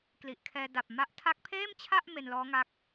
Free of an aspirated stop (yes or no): no